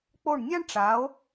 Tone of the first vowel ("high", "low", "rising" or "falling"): falling